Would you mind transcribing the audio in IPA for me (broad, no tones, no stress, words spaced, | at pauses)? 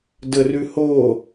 dərʉho